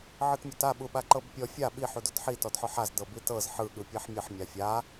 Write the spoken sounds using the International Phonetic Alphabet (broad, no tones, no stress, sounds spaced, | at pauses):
ʕ ɯ t mʲ ɔ t a ɓ u ɓ a ǃ ɤ b pʲ ɔ fʲ a ɓ i ħ u d o t ħ i t ɔ d ħ ɔ ħ a z d ɤ b i t ɤ z ħ ɯ ɠ ɯ pʲ ɛ ħ mʲ ɯ ħ mʲ a fʲ a